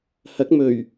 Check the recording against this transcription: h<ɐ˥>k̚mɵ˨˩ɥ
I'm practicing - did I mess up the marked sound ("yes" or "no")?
yes